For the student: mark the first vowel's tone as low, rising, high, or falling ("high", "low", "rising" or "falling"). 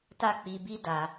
high